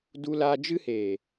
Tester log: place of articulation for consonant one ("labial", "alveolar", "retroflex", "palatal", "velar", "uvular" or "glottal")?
alveolar